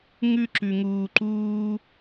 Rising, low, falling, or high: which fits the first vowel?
high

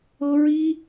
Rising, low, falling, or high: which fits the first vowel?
high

